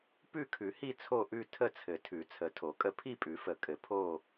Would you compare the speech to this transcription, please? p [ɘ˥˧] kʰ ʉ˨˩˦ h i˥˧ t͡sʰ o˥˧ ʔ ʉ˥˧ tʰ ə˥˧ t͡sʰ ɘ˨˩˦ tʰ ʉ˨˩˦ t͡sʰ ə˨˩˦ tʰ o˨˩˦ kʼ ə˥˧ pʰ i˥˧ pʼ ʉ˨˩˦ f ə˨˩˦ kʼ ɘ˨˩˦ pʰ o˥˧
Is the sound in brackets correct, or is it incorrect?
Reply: incorrect